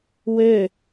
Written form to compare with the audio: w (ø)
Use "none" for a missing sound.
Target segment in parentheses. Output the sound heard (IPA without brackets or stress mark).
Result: ø